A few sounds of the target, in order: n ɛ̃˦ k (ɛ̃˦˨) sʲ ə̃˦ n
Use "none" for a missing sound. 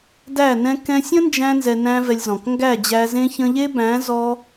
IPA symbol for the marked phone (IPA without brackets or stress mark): ɛ̃˧